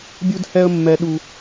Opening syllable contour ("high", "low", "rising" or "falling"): high